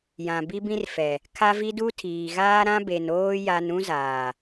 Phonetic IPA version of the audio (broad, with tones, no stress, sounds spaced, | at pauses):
j ã˨ b i˦ b ĩ˦ r f ɛ˨ | kʰ a˦ v i˦ d u˦ tʰ iː˨ ɣ aː˦ ɾ ã˦ b e˨ n oː˦ j a˦ n ũ˦ z aː˨